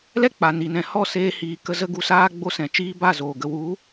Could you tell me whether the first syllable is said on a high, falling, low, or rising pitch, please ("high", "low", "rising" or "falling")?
high